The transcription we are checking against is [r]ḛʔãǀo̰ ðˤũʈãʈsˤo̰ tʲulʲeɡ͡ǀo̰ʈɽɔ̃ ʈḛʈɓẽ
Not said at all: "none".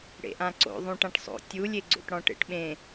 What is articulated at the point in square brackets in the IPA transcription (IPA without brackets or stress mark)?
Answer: ɽ